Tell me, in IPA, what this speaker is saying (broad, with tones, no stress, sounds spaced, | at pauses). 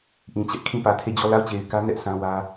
ʔ ĩ˨ t͡ɕ ɛ˦ ʔ kʰ ĩ˦˨ p ä˨ tʰ e˦˨ d͡ʑ ɔ˦˨ l a˦˨ ʊ̯ t͡ɕ e˨ ɪ̯ k ä˦ n ɛ˦ ʔ sʰ ã˦ w ä˦